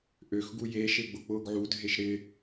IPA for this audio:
ʔ ø x ɡ u j e ʃ e ɡ͡b ʊ k͡p ʊː ɡ ʕ u dʱ e ʃ ɾ ɪ

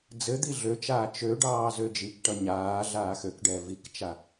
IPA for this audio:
d͡z ɘ d̪ i ɮ ø t͡ʃ aː t͡ʃ ø ɖ ɑː z ø d͡ʒ i k ʈ ʌ ɲ aː ɮ aː x ø k ɖ ɛː v i k t͡ʃ a

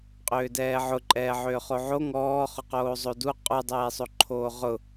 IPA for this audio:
qʼ ʏː d ɛː ʕ ʊ ǃʼ ɛː ʕ ʏː χ o ʕ o ŋ ɔː χ ʊ q oː zˤ o d u qʼ u dˤ ɛː sˤ o ǃʰ oː ʁ ʊ

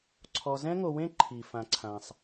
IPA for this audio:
ǀʰ ɔ˨ z ɛ̃˦ ŋ o˨ w ẽ˦ ǃʰ i˩ f ã˩ ǀʰ ã˩ sˤ

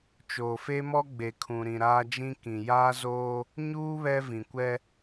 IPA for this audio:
t͡ʃ oː˨ f e˦ m ɔ˦ ɡ͡b e˨ kʰ ũ˨ ɾ ĩ˨ ɾ aː˦ d͡ʒ ĩ˦ k ĩ˨ j aː˦ z oː˦ | ɲ uː˦ β ɛ˦ v ĩ˨ kʷ ɛ˦

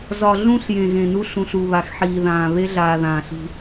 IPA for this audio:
z ɒ˨ ɮ ũ˦ ɬ j ẽ˨ ɣ ẽ˨ n u˦ ɬ ũ˨ ɬ u˨ β a˨ x ħ iː˨ ð ãː˨ β e˦ ɮ aː˨ ð ãː˨ ɬ i̤˦

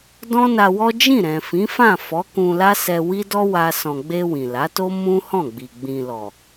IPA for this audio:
d ɔ̃˦ n a˧ w ɔ˦ d͡ʒ ĩ˦˨ ɾ ɛ̃˨ f ĩ˨˦ f ã˦˨ f ɔ˨˦ k ũ˧ l a˦ s ɛ˧ w i˦ d ɔ˦ w a˧ s ɔ̃˨ ɡ͡b e˧ w ĩ˨ l a˨˦ t o˦ m ũ˦ h ɔ̃˦˨ ɡ͡b i˨ ɡ͡b ĩ˨ l ɔ˨

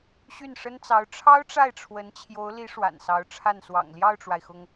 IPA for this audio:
ɕ y˥˩ n ʂ ə˥ n t͡s ɑ˧˥ ʊ̯ ʈ͡ʂʰ ɑ˥ ʊ̯ ʈ͡ʂ a˥˩ ɪ̯ ʈ͡ʂʰ w ə˧˥ n t͡ɕʰ j o˧˥ ʊ̯ l i˧˥ ʂ w a̰˨˩ n s ɑ˧˥ ʊ̯ ʈ͡ʂʰ a˥˩ n s w ɑ̰˨˩ ŋ l j ɑ˥˩ ʊ̯ ʈ͡ʂ w a˩ ɪ̯ x ʊ˩ ŋ

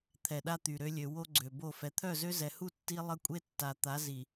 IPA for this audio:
t̪ʰ ɛ˨ ɗ a˦ t̪ y˨ ɾ ø˦ lʲ ø˨ w o˦ ɡ͡ǀ ø˨ b o˦˨ f ɛ˨ t̪ʰ œ˦˨ z ø˦ z ɛ˨ h u˦˨ tː i˦ lˠ ə˦ kʷʼ e˦ tː a˨ t̪ a˨˦ z i˨

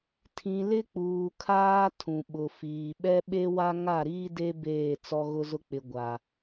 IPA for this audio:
tʰ ĩ˨ l ɪ˦ k͡p uː˨ kʰ aː˦ tʰ ũ˨ ɓ ʊ˨ f iː˨ ɓ ɛ˦ ɓ e˦ w a˦ ŋ a˦˨ ɾ iː˦ d e˦ b eː˦˨ t͡s ɔ˦ ɣ ʊ˦ z ʊ˦ k͡p ɪ˨ ɡʷ a˨

